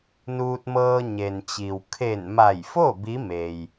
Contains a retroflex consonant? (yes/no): no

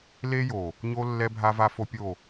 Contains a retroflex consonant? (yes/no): no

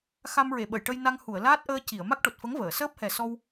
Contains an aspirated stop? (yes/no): no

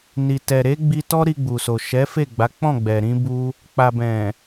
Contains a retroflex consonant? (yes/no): no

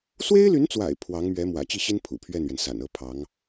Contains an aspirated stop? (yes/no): yes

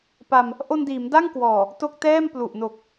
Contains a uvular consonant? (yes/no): no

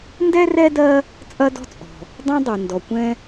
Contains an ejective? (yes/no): yes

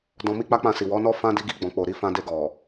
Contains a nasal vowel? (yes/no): yes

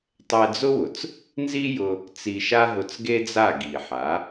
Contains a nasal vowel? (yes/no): no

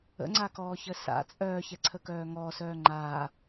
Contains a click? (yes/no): yes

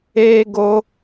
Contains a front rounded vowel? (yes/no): no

